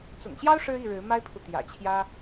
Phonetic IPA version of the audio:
t͡sʊ̰˨˩ŋɕjɑ˦ʊ̯ ʂɻ̩˦i˥˨ɻɻ̩˨˦ ma˦ɪ̯pʰu˨ t̪jä̰˨˩t͡ɕʰjä˦

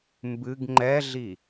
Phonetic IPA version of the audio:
mbɨɡ ŋ͡ǃɛɮi

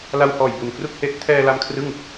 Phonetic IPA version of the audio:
la˧whɔː˨˩jbu˨˩n kru˥˩k̚he˦˥ʔ tʰɛː˧la˧m kʰrɯ˥˩ŋ

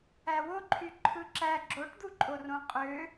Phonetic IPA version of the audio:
æwoǃʰy ǃʰɯǁæ ɡ͡ǁoʈd̪uǃʼorõ qʼø

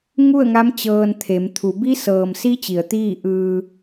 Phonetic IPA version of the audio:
ŋu˥˨ə̯ŋa˧˥m t͡ɕɤː˧nt̪ʰe˩˧m t̪ʰu˩˧ bi˧˥sɤː˩msi˧˥ t͡ɕi˩˧ə̯t̪iː˥˨ ʔɯː˧

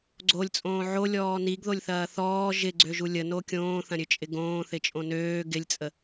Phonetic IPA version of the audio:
ɡ͡ǀolʲt͡sʼõː ʕolʲɔː niɡðolʲθɐː θɔː ʒɪɡ͡ǀøʒu lʲəno kʲõːθɐ̃ɾʲøt͡ʃʼɪ ɡõːθɪt͡ʃʼõ nøː ɡɪlʲt͡sʼə

